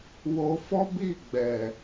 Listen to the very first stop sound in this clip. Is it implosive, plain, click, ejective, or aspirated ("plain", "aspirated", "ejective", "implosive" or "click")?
plain